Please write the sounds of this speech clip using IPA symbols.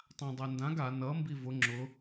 tˤ ã dˤ ɛ n d ã ɡ a n ʌ m b i v ʊ ŋ͡ǁ ʊ

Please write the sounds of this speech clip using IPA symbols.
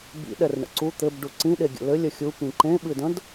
b ḭ ɗ ɛ r ɳ ə̰ ǀ u t̪ ɘ b ɖ u ǀ ĩ ɗ e ɡʲ ə̰ l ɘ lʲ ə xʲ u p ĩ ǃ ẽ ɓ ɨ d ə̃ d

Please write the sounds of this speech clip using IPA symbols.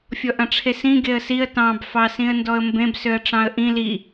fʲ ɔ ʔ ɐ̃ ʈ͡ʂʰ e s ĩ ɡ e ə̯ s i ə̯ t ɑ̃ b f ɑ s ĩ ə̯ n d ɔ ə̯ m b ẽ b s ø ə̯ ʈ͡ʂ ɑ̃ ə̯ ʔ ĩ l i

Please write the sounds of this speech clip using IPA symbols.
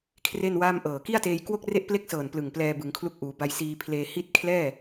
kʰ r e˥˩ n w aː˥˩ m ʔ ɤː˨˩ k i˥˩ a̯ t eː˧ j k w o˥˩ k̚ r e˥˩ ʔ p l e˥˩ k̚ s ɤː˨˩ n p l ɯ˨˩ ŋ p l ɛː˧ b ɯ˩˦ ŋ kʰ l u˦˥ k̚ ʔ uː˩˦ b a˧ j s iː˧ pʰ l eː˧ h i˦˥ t̚ kʰ l ɛː˥˩

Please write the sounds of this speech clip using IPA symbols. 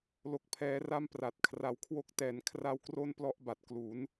l o˨˩ k̚ pʰ ɛː˩˦ r a˦˥ m p r a˨˩ t̚ kʰ r a˨˩ w kʰ w o˦˥ k̚ t ɛː˩˦ n kʰ r a˦˥ w k r o˥˩ n p l ɔ˦˥ ʔ b a˨˩ t̚ k l u˩˦ n

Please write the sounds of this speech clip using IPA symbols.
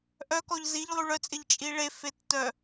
ʔ œ k ɔ ʎ z i ʎ lˠ y ɭ œ t͡sʼ ɪ ʎ t͡ʃʼ i ɭ e f e tː œ

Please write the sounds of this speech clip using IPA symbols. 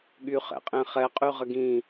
ɠ y χ ɛ̰ qʼ ẽ χ ɛ qʼ y ʁ ə ɡ ĩ

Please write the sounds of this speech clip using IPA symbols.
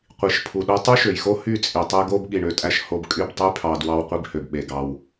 qʷ i˨ ʃ pʰ u˨ ɗ o˧ tˤ y˦ ʃ ø˨ j x o˦ h y˦˨ t͡sʼ i˨ tˤ e˦ ɡ o˦ b ɠ i˨ ɳ ø˨ tʼ æ˧ ʃ h o˧ b kʼ y˦˨ b tˤ y˦ pʰ ɑ˧ d w ɑ˧ w qʷ i˧ b h ø˨ b ɓ e˨ ɡ ɑ˧ w

